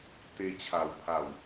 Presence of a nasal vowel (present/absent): absent